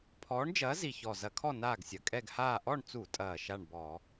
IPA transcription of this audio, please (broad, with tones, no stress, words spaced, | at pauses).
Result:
pʰɔː˨˥ɳd͡ʒɐː˨˥zi˨˩çɔ˨˩ zɐ˧˩˧kʰɔ˥˨ naː˥˨ɡsʲɐ˨˩ kʼɛ˥˨ɡhaː˥˨ ʔɔ˥˨ɳt͡su˧˩˧tʼɐː˨˩ ʃa˥˨ɳbɔ˧˩˧